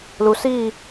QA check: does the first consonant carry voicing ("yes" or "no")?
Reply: yes